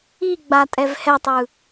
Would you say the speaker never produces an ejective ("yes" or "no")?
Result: no